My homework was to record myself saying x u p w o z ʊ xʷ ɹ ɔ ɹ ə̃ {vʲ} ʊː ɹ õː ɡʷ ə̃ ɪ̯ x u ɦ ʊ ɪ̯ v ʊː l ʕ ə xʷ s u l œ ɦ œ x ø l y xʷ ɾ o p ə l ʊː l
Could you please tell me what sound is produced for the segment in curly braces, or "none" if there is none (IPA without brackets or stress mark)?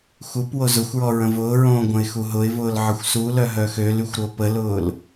v